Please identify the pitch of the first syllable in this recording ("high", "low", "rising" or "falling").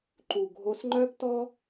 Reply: low